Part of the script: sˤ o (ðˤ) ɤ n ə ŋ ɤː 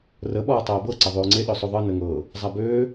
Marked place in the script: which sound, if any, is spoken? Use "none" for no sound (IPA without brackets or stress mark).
ðˤ